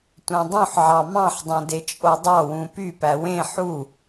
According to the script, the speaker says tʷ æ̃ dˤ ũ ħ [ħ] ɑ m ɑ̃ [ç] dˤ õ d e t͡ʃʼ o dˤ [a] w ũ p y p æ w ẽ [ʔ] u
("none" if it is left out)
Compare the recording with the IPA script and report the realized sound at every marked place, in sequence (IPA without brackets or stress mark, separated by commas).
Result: ʕ, ħ, ɑ, ħ